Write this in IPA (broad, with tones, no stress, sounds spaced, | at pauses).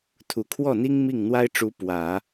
t̪ʰ u˨˩ kʰ w ɔ˥˩ n̪ i˥ ŋ m i˥˩ ŋ n̪ w a˥ ɪ̯ ʈ͡ʂ u˧˥ p w ä˨˩˦